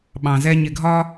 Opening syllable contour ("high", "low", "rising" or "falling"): low